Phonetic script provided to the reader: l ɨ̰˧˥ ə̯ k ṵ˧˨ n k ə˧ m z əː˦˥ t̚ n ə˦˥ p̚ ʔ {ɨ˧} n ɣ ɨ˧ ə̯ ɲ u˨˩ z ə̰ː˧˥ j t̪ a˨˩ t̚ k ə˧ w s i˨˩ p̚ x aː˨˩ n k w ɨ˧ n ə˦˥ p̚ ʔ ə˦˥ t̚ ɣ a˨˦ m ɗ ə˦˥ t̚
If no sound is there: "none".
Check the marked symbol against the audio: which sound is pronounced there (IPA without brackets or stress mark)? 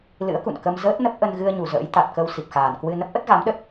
ə˧